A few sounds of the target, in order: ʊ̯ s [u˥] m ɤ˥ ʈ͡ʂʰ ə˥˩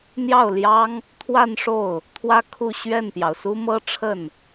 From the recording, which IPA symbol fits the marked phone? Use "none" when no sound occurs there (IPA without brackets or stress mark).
u˥